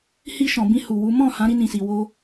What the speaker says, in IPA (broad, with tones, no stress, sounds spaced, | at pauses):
h i˧ ʃ ɔ̃˨ b ĩ˧ h u˨ w u˨˦ m ɔ̃˦˨ h ã˨˦ ɾ i˧ n ĩ˨ s i˨ w o˧